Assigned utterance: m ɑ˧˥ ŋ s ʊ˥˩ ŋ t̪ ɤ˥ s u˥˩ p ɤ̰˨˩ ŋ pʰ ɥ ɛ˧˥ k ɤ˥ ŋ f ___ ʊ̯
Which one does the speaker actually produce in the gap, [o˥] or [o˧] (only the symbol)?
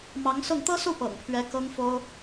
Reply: o˥